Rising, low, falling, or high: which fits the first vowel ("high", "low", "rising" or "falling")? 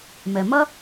low